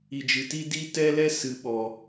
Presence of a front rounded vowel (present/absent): absent